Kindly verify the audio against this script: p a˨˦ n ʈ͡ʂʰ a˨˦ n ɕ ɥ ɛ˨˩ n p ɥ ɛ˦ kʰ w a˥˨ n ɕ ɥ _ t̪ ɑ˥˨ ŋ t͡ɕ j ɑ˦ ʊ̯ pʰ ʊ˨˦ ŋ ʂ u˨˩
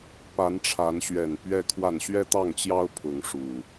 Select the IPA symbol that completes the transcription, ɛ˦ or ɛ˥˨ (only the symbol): ɛ˦